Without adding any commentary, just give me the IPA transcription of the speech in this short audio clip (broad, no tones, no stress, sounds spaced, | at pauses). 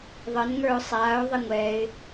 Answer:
ðˤ ə n ŋ ə˞ ʊ̯ sˤ aː ʊ̯ ðˤ i ŋʷ ɛ ɪ̯